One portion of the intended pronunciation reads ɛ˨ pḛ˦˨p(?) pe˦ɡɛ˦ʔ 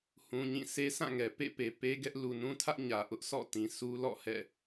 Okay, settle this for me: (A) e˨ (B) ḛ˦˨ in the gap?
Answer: A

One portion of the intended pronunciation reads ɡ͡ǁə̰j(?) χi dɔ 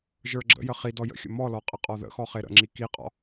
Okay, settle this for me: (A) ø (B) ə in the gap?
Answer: B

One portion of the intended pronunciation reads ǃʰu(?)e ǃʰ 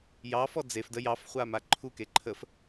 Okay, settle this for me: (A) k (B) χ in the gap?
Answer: A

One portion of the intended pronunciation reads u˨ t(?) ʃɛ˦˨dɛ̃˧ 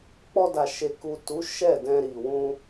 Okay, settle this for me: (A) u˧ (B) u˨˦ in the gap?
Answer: B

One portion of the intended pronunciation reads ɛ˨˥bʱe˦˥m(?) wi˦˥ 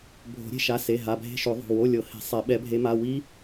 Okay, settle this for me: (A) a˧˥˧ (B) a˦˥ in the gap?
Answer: A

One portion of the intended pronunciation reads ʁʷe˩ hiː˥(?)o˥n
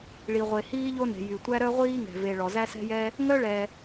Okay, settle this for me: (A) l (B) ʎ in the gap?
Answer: B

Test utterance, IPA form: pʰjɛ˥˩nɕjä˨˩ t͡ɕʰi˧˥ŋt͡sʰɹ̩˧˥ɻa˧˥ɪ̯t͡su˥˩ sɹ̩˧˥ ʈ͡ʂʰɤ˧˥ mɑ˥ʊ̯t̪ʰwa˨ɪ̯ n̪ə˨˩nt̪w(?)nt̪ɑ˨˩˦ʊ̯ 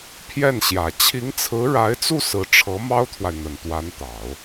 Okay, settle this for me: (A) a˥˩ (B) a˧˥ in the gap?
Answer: B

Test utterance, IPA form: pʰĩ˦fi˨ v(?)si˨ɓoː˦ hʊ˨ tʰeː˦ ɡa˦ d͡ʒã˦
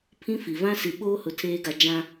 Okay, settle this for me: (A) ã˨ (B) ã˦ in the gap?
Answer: B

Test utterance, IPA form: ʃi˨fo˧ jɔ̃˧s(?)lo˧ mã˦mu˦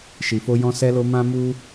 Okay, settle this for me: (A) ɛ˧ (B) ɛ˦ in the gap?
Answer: A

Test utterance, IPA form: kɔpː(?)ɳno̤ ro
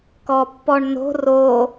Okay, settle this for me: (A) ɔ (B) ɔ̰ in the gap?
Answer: A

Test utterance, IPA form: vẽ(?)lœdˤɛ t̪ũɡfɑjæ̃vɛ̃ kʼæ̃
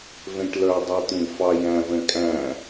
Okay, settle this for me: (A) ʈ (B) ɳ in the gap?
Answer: A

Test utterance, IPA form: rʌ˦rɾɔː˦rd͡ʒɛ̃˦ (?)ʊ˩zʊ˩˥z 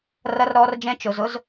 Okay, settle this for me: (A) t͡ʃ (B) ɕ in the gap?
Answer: A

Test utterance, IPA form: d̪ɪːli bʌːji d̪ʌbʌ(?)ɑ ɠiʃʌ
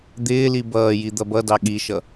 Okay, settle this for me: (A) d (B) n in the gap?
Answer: A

